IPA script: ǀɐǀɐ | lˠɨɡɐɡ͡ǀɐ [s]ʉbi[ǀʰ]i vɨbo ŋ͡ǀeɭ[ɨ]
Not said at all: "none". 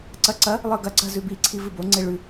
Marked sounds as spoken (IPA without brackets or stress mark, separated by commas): z, ǀʰ, ʉ